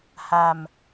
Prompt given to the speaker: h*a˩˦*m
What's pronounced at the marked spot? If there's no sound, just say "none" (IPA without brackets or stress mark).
a˧